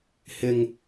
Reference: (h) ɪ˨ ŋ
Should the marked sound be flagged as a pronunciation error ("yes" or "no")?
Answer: no